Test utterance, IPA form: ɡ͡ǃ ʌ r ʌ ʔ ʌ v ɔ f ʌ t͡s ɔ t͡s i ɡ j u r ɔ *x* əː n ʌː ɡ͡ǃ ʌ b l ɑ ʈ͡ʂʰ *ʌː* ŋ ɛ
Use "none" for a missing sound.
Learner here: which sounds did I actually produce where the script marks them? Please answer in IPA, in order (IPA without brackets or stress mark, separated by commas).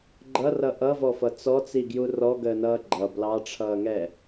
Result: ɡ, ʌː